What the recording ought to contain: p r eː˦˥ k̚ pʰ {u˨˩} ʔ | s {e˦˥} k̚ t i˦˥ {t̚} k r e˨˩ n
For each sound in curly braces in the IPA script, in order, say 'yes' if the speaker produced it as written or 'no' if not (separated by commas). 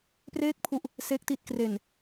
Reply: yes, yes, yes